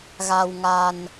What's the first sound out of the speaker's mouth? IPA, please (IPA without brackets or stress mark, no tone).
ɣ